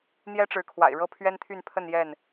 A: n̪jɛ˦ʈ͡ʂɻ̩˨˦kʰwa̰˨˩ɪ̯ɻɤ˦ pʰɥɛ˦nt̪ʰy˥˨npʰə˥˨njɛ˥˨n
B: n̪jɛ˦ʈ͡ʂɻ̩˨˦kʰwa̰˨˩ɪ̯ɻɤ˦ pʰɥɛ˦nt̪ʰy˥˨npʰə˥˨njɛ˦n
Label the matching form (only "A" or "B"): A